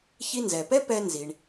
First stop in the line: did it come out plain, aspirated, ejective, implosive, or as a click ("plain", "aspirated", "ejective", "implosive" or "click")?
plain